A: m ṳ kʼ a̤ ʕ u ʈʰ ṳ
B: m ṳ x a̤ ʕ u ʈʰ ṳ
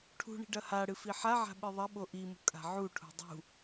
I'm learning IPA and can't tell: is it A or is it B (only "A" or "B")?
A